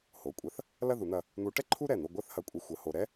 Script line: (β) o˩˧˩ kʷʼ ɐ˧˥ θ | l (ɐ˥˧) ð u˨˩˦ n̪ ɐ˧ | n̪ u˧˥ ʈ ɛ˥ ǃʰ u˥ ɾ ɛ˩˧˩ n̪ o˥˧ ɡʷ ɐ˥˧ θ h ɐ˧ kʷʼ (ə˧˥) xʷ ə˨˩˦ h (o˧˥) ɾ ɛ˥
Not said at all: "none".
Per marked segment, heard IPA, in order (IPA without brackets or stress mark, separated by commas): h, ɐ˥˧, ə˧, o˧